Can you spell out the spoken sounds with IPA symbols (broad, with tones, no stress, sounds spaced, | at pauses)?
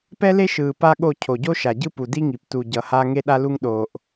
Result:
p ɛ˦ l e˦ ʃ ɯː˨ p a˦ ɠ o˦˨ cʰ o˨ ɟ o˦ ʃ a˨ ɟ ɯ˦ p u˨ d i˦ ŋ i˨ p t u˨ ɟ ʌ˨ h a˦ ŋ e˦ ɗ a˦ l u˦ ŋ ɗ oː˨ ʔ